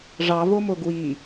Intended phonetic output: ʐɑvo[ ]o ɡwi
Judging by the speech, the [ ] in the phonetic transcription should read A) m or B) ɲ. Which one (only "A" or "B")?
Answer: A